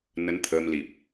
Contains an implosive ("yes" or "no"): no